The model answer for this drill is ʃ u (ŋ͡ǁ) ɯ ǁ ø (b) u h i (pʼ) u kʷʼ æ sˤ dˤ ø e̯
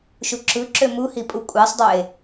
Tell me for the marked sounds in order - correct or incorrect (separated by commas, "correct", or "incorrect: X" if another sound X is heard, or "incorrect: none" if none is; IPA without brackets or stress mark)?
incorrect: ǁ, incorrect: m, correct